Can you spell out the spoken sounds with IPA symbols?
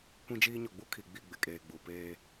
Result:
kʷ ĩ˦ d͡ʒ iː˦ ɲ ɔ˨ ɡ͡b u˦ kʰ i˨ ɡ͡b i˦˨ ɡ͡b ɪ˨ kʼ eː˨ ɡ͡b u˨ p eː˦

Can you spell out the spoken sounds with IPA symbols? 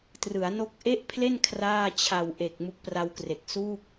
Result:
t r ɯ˩˦ a̯ n o˦˥ k̚ ʔ e˥˩ ʔ pʰ l e˥˩ n kʰ r aː˥˩ t͡ɕʰ a˨˩ w ʔ e˨˩ k̚ m u˦˥ k̚ p r a˦˥ w k r e˨˩ k̚ s u˥˩ k̚

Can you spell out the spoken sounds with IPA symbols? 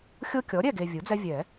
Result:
xʲ o˦ kʲ ɔ˩˥ ɾʲ ɛ˥˨ ɡ e˨ vʲ u˩˥ d͡z ɛ˦ vʲ ɛ˨˩˦

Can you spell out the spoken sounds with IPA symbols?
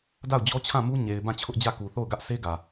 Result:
d a˦˨ ʊ̯ d͡ʑ ɔ˦ t͡ɕʰ ã˦˨ m u˦ ɲ e˨ ɪ̯ b ã˦˨ t͡ɕʰ ʊ˦ ʔ d͡ʑ ä˦˨ k u˨ θ o˦˨ ʊ̯ ɡ ä˦ ʔ s e˦ ɡ ä˨

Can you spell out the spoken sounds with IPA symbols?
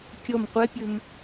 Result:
kʲ ɔ m qʷ ɛ pʲ ɵ m

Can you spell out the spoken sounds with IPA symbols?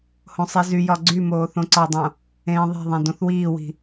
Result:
h õ sˤ i z y j ɒ ɡ͡ǀ y m oː θ õ ǀ ɒ dˤ õ | ẽː ðˤ e̤ ðˤ ẽ d õ θ w iː w i̤

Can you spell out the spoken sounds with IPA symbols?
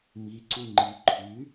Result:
m i ǀ u ŋ͡ǃ i ǃʰ y

